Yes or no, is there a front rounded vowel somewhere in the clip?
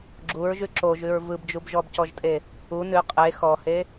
no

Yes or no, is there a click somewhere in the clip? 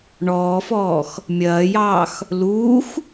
no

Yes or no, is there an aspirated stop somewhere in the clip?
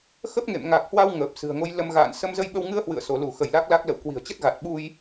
no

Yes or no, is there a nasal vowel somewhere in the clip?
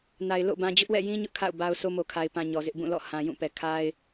yes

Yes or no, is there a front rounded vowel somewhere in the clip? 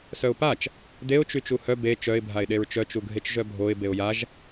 yes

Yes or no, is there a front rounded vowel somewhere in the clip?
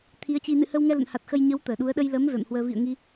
no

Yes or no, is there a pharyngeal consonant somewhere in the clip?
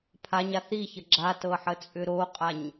yes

